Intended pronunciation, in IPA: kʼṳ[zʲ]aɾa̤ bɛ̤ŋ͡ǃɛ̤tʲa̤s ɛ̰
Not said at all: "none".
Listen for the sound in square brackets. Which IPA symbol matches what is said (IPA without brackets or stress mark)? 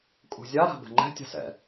zʲ